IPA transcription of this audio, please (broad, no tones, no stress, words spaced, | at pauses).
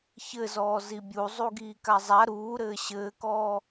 çɘzɔː zibʲu zˤuɡiːkazˤa ɾuːɾɘː ɕɘːkɔː